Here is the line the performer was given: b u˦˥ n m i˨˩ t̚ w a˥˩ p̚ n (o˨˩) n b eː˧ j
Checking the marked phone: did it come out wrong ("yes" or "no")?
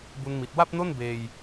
yes